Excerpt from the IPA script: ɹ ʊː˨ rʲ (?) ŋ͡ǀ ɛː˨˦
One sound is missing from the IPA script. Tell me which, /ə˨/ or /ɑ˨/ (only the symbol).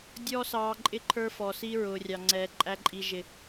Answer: ɑ˨